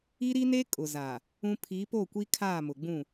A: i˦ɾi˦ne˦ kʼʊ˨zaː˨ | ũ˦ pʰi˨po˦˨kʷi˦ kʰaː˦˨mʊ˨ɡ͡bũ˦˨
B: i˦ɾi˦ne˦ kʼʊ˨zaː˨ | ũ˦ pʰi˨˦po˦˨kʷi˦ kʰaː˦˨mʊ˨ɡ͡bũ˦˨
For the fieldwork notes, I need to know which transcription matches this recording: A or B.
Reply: B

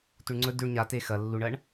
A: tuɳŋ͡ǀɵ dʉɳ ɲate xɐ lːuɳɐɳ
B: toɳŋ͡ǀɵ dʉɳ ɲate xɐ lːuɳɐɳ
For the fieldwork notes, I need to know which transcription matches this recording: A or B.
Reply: A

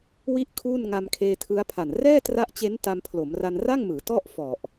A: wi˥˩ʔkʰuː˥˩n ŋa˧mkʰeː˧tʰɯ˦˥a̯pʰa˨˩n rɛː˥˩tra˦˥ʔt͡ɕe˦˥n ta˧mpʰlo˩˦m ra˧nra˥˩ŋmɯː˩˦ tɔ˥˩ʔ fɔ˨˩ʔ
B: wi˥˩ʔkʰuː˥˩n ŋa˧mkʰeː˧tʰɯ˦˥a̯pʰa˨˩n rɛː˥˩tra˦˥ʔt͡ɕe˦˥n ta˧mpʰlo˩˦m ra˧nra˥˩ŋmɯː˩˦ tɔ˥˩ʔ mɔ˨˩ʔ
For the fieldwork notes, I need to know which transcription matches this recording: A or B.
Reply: A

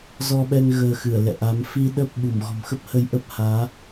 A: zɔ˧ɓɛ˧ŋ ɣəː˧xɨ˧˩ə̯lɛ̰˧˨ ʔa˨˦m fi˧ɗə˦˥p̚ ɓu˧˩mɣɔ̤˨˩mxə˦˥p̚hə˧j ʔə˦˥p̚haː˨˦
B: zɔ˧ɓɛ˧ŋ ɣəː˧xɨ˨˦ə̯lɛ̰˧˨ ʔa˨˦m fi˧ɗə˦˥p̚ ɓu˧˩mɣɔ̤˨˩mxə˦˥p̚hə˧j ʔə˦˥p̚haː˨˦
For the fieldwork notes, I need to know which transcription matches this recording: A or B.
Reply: A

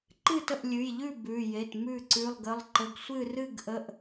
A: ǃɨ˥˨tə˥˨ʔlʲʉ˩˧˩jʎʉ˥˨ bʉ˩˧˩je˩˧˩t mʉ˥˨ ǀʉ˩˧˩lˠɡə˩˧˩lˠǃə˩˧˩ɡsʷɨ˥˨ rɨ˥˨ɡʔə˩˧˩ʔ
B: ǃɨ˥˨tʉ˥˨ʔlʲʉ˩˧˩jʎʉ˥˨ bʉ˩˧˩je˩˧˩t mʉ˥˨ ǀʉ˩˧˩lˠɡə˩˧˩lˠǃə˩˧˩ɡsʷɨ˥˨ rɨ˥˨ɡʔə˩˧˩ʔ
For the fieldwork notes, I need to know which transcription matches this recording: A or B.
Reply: A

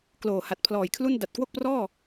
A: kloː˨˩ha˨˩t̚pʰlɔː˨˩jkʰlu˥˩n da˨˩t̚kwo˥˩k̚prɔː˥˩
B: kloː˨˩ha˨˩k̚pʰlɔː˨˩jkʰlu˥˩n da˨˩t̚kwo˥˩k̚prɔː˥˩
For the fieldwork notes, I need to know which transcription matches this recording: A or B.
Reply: A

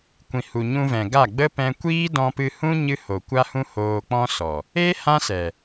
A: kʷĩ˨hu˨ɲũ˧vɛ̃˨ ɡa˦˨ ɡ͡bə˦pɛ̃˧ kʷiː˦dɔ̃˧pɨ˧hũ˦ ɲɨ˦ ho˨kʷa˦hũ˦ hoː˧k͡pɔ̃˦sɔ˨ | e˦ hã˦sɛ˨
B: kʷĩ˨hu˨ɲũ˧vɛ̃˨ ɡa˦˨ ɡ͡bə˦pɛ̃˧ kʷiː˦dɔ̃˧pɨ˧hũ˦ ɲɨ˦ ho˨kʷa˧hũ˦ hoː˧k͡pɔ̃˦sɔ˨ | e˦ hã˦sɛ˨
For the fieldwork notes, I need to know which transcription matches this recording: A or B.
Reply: A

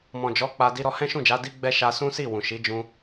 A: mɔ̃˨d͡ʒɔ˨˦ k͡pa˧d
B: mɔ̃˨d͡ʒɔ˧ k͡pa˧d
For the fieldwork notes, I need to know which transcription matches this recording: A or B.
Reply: A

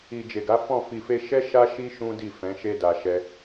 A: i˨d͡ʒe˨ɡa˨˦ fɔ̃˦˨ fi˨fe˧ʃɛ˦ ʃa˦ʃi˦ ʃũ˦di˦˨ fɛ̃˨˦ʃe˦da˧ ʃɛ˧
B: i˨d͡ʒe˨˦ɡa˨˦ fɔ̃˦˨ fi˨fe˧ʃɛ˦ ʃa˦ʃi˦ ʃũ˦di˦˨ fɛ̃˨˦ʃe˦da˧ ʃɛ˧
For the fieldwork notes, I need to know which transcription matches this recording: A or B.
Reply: A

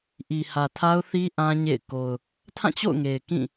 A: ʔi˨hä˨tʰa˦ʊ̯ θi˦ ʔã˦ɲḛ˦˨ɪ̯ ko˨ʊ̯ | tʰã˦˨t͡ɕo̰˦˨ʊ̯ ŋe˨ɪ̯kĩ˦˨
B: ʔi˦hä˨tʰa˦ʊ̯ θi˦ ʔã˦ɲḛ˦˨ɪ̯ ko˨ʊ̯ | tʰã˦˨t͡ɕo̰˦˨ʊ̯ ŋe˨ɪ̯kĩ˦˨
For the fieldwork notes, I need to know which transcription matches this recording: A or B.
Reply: A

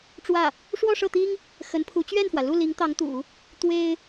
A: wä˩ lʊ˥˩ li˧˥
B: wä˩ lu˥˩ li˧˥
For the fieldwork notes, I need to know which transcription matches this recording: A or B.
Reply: B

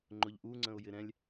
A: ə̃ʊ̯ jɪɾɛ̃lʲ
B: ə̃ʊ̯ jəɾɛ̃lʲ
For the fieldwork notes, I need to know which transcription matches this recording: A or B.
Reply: A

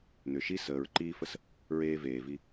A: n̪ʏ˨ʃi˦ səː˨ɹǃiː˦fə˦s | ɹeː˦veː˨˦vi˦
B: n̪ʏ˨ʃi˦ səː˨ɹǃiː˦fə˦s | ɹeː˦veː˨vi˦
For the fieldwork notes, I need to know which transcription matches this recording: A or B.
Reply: B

